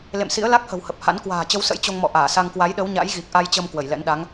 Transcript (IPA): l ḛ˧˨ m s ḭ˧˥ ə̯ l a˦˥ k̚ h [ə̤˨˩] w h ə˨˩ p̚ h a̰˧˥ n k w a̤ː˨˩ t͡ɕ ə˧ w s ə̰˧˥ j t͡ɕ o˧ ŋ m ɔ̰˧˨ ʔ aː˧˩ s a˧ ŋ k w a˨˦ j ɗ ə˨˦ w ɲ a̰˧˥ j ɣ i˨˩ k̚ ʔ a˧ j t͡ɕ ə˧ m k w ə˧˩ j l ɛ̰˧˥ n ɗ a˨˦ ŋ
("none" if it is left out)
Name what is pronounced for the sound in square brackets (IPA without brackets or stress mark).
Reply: ə̤˨˩